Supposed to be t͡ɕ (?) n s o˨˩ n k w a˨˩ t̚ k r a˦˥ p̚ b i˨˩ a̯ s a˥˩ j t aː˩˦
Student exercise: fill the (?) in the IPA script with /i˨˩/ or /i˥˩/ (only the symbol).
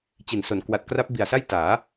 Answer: i˨˩